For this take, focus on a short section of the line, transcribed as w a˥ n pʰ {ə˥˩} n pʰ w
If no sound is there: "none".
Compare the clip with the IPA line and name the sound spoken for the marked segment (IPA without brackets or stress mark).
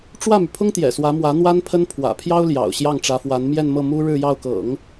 ə˥